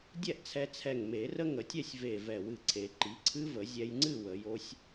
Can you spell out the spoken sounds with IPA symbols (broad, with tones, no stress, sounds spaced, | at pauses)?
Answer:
dʲ ɛ˥˨ ʔ t͡sʰ ɛ˧ t͡sʰ ɛ˧˩ ŋ m e˨˩˦ r ə˦˥ ŋ ə˨˩˦ tʲ ɛ˥˨ sʲ v e˧˩ v ɛ˧˩ w ɨ˧˩ ǀʰ e˨˩˦ ǃ i˩˥ ǀʰ ɨ˦˥ v ə˨˩˦ zʲ ɛ˧ j ŋ͡ǀ ɨ˥˨ w ə˨˩˦ j o˦˥ sʲ